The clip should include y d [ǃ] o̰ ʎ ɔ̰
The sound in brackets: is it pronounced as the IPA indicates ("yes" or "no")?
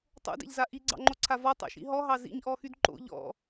yes